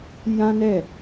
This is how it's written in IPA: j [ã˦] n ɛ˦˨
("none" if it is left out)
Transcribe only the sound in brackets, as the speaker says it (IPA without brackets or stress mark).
ã˦